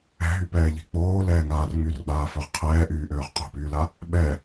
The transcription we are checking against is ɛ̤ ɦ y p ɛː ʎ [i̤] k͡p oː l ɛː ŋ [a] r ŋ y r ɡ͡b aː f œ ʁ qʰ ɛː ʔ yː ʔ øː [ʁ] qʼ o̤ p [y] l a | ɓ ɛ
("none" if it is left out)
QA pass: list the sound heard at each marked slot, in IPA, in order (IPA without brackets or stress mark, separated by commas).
e̤, aː, ʁ, yː